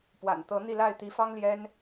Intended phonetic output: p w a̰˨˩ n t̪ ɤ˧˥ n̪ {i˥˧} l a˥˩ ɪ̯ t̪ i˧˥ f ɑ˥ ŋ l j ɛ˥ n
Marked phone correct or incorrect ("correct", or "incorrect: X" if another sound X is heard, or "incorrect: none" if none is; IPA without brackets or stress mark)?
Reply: correct